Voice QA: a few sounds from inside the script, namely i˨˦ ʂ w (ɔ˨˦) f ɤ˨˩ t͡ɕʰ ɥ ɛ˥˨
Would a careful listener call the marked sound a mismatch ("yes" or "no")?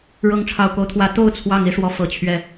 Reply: no